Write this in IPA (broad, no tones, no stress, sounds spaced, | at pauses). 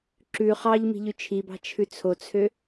ǁ ʉ χ ɑ ʎ m i̤ ʎ ʉ t͡ʃʰ i b ɑ̤ t͡ʃʰ ʉ t͡sʰ o t͡sʰ ø